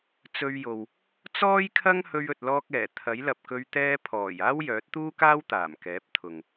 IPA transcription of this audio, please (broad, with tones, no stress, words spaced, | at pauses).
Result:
t͡sɵ˧ɥjo˨w | t͡sɔː˥jkʰɐ˥ŋ hɵ˧ɥɵ˨t̚lɔː˧k̚ ɛː˨˩ t̪ʰɐ˨˥jlɐ˨p̚kɵ˧ɥ t̪ɛː˧pʰɔː˨˩j aː˥wjœː˨˥t̚t̪uː˥kaː˥w t̪aː˨˩mkɛː˨˥p̚t̪ʰʊ˨ŋ